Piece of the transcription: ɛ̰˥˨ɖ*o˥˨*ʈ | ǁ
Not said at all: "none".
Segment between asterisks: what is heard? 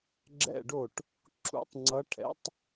o˥˨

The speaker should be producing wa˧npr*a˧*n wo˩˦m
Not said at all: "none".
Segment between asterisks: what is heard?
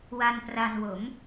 a˧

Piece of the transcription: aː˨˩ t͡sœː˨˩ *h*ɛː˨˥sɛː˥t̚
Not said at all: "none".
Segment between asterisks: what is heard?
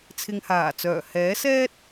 h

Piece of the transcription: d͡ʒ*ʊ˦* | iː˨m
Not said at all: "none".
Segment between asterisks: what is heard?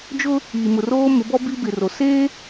ʊ˦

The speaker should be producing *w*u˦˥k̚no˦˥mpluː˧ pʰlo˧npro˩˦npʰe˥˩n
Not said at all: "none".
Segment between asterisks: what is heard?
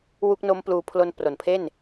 w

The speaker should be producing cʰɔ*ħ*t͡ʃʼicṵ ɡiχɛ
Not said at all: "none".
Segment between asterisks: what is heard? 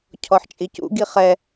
ħ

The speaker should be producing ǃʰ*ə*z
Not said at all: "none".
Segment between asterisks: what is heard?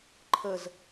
ə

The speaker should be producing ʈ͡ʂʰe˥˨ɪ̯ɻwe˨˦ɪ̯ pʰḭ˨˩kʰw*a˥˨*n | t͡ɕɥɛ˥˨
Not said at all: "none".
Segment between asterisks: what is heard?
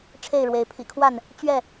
a˥˨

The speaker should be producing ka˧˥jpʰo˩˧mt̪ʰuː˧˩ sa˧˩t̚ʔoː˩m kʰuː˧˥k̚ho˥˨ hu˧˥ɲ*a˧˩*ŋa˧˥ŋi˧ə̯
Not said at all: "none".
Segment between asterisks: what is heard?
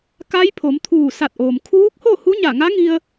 a˧˩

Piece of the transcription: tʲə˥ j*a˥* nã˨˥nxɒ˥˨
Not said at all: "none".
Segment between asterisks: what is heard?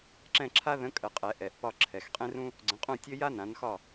a˥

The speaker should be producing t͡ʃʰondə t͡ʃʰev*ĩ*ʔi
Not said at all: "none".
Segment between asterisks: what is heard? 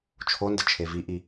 i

